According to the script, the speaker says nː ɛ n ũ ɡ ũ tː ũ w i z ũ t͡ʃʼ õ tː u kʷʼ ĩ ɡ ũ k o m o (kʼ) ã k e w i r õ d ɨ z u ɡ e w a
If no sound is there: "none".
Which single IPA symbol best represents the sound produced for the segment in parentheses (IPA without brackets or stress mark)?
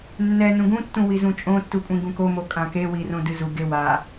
kʼ